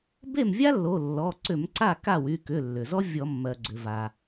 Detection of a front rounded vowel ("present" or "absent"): present